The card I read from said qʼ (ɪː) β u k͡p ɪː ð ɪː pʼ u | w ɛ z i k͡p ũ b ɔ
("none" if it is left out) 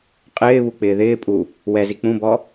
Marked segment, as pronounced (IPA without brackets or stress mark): ɪː